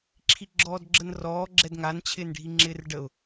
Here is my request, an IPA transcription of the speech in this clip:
ǁʰ i ɡ͡ǁ ɔː d ɡ͡ǁ ə n r ɔː ɡ͡ǁ ɛ d ŋ a n t͡ɕʰ ɪː n ɖʱ i ŋ͡ǁ ɪː r ɖ ə ʊ̯

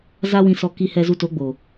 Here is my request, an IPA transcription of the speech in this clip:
z a˦ w ĩ˧ s ɔ˧ k i˧ h ɛ˧ z u˧ t o˨˦ ɡ͡b o˨

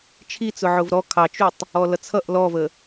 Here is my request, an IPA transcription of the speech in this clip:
t͡ʃʰ i t͡s ʊ ʕ ʊ v ɾ ɔ kʰ ɑ t͡ʃ u tˤ | ɔ l ʌ t͡sʰ ʌ ʔ l ɔ v ə

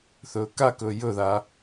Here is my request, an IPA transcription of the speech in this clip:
θ ɵː k a k ɵː j ɵ ð a

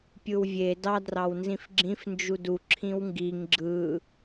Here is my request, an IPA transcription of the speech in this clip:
pʲ ɯ w vʲ e d ɑ d r ɑ w n z ĩ f ɡ͡ǁ ĩ f n d͡ʒ u d u ǁʰ ĩ w ŋ ɡ i ŋ ɡ͡ǁ ɯ

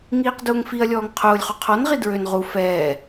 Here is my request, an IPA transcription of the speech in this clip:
ŋ iː q d ʊː ŋ f i ɐ̯ lʲ ɔː ŋ qʰ ʊː lʲ χ u qʰ ɔ n ʁ i d ɹ ø n ʁ u f ɛː

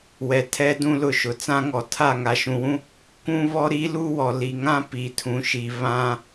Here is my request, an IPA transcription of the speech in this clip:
w ɛ˨ tʰ ɛ˦ d ũ˦ l ʊ˦˨ ʃ ʊ˨ t͡s ã˦ ŋ ɔ˨ tʰ a˦˨ ŋ a˨ ʃ ũ˨ w ũ˦ | k ũ˦ β ɔ˦ ɾ i˦ l u˦ w ɔ˨ l i˨ ŋ ã˦ p i˨ tʰ ũ˨ ʃ i˨ β ã˦

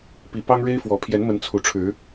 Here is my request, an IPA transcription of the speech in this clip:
p i˨˦ p ɑ˦ ŋ ɻ e˦ ɪ̯ f w ɔ˨˦ pʰ j ɛ˨˦ n m ə˨˦ n t͡sʰ u˨˩ ʈ͡ʂʰ ɻ̩˨˦

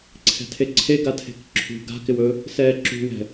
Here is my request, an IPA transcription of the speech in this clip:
ǀʰ ɛ̤ tʰ e ǀʰ e ɡ a tʰ e̤ k ǁʰ ṳ ɡ a̤ k ɪ w ɵ | s ɛː ǁ ṳ w ɛ̤

